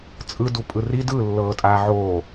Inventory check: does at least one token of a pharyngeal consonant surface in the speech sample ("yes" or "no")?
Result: yes